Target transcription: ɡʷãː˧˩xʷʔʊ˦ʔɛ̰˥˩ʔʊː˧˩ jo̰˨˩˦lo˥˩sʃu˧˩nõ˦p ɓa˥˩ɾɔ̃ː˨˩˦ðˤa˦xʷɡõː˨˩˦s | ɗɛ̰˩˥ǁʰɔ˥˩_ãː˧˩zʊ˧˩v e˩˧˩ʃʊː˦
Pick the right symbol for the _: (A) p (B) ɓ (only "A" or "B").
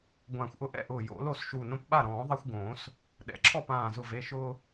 A